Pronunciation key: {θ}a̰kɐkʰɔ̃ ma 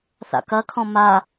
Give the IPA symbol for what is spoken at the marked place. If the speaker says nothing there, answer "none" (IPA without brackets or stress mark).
θ